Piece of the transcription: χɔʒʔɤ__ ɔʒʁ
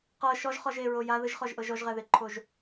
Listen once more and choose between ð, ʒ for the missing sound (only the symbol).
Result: ʒ